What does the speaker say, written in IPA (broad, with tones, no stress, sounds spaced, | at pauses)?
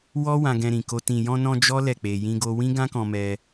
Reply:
w ɔ˦ w ã˧ ɡ ɛ̃˧ ɾ ĩ˨ k o˧ t ĩ˨ j ɔ̃˧ n ɔ̃˧ d͡ʒ ɔ˦ l ɛ˦˨ k͡p e˧ j ĩ˦ ɡ o˦ w ĩ˦ ɡ ã˦ k ɔ̃˧ m ɛ˧